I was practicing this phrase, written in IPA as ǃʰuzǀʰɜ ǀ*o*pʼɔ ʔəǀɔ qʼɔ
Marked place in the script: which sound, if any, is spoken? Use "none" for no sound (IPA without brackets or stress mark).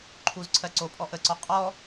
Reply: o